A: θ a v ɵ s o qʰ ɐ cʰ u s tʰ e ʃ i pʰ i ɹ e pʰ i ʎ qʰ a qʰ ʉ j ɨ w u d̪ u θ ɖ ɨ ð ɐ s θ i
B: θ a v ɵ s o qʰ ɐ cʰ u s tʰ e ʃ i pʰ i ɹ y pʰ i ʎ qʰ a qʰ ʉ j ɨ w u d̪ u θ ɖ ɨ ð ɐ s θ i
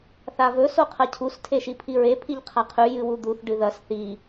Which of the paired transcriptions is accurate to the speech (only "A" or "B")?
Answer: A